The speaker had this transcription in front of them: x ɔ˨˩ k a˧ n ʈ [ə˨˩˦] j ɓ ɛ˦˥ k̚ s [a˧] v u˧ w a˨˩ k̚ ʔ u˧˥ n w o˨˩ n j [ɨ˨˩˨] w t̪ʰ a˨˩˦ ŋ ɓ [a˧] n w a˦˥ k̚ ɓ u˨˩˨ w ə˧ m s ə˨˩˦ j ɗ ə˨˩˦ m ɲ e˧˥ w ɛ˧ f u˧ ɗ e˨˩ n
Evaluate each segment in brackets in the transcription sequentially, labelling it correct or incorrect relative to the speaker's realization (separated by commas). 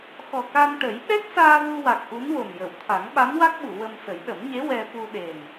correct, incorrect, incorrect, incorrect